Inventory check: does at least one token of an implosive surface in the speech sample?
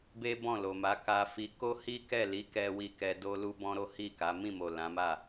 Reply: no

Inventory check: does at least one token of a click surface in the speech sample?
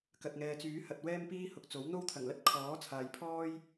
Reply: no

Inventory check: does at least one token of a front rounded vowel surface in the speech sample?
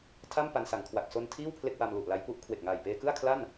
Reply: no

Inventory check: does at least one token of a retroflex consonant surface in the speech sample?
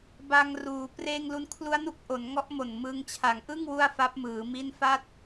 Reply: no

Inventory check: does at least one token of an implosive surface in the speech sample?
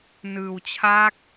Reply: no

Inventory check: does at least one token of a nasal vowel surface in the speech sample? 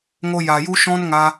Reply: yes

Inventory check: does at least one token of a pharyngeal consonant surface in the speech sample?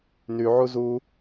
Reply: yes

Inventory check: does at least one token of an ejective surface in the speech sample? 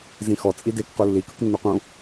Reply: yes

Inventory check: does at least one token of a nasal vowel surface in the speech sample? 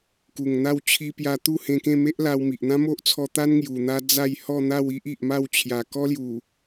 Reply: yes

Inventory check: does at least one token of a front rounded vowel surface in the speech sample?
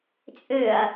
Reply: yes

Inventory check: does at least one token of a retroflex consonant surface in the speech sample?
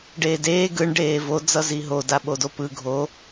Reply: yes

